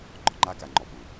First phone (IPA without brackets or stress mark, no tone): ŋ͡ǃ